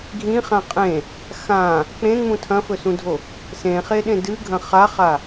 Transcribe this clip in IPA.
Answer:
ɡʱ ĩ χ ã qʼ ẽ | x ã | k͡p ẽ ŋ͡m ũ tʰ ɐ̃ f ɵ s ũ dʱ o | s ẽ χ e ɗ ẽ d ɨ ɡʱ ɐ̃ χ a χ a

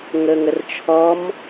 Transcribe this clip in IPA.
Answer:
ŋ ə ŋ ə r t͡ʃʰ ɔ m

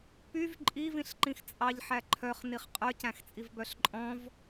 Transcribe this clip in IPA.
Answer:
p y v ǃʼ i v ĩ ɬ ǃ ĩ x t͡sʼ ɑ ʎ ħ æ ǃʰ œ χ n i χ qʼ œ c æ̃ x t͡sʼ i v b œ ɬ ǃʼ ɔ̃ v

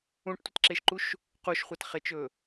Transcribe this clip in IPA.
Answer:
ũ ʈ tʷ ə t ǁ e ʃ ǃ u ʃ | q u ʃ χʷ a t χ e t͡ʃ ɵ

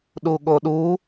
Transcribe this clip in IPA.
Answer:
ɗ u ɠ o ɗ u

